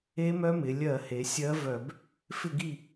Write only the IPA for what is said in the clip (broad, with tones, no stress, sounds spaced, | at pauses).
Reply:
e˧˥ m œ˧˥ m ɪ˩˧ lʲ ɜ˧˩˧ h e˩˧ sʲ ɜ˧˥ v œ˧˩˧ b | f ɪ˦˨ ɡ i˦˨